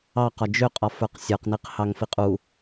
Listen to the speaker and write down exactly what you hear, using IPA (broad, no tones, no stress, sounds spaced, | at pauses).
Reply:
ɑ q ɒ d͡ʒ ʏ qʼ ɒ f ə˞ q sʲ ə˞ q n i q h ɑ ŋ f i qʼ u